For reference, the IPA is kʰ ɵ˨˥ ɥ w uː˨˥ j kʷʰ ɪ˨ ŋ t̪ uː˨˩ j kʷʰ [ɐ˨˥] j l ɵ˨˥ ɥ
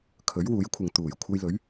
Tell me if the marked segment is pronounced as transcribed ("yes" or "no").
no